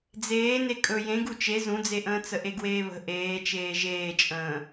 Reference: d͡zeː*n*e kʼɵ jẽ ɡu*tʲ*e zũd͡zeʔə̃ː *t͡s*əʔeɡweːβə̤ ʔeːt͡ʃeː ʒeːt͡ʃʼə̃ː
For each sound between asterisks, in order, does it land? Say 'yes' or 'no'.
yes, no, yes

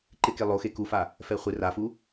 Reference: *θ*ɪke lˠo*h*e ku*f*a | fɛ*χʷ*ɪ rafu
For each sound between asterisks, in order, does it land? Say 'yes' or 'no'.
no, no, yes, yes

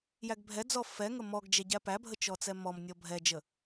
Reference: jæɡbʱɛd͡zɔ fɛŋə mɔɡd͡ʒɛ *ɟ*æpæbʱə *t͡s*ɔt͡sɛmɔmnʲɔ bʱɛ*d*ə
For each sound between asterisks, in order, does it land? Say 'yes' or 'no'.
yes, no, no

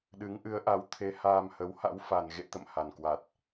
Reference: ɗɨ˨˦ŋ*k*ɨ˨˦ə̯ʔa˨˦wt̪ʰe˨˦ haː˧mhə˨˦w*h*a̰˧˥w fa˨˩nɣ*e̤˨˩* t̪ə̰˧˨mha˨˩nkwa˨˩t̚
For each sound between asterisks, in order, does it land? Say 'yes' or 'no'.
no, yes, no

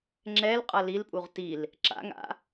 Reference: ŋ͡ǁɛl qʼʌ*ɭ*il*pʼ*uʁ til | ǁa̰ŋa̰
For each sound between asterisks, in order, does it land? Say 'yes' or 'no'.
no, yes

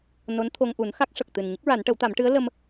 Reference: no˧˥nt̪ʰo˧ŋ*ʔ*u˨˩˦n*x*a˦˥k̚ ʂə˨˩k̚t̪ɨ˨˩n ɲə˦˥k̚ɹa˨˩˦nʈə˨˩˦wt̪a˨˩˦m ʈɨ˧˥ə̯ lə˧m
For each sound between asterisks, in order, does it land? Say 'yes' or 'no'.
yes, yes

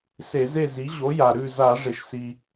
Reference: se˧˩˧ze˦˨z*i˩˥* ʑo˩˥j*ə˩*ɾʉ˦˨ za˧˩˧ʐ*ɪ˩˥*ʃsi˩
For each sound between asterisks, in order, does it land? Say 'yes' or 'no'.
yes, no, no

